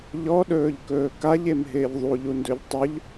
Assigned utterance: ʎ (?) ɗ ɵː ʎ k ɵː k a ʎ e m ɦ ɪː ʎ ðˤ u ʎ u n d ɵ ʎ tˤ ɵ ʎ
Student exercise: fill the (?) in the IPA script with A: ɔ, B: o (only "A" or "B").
A